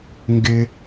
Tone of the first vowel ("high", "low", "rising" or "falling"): high